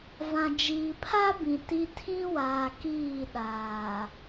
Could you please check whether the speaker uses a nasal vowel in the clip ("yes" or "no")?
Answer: yes